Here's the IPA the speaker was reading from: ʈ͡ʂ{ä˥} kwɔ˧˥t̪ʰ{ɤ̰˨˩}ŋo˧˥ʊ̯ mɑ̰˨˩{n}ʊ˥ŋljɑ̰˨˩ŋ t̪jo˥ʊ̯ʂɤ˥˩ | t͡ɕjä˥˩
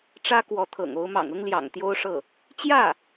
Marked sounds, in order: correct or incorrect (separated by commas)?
correct, correct, incorrect